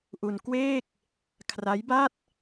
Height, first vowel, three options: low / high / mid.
high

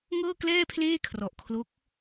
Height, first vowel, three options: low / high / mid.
mid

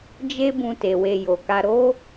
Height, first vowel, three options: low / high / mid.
mid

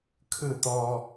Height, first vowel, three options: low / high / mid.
high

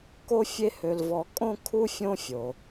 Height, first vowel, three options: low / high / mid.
mid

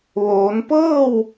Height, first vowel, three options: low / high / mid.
mid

